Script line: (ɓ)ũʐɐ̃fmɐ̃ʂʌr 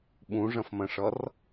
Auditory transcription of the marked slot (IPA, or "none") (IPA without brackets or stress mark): ɓ